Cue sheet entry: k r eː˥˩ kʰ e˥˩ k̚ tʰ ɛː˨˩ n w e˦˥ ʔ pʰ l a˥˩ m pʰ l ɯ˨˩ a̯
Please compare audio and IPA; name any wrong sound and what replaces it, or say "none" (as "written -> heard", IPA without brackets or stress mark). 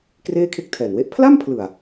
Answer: none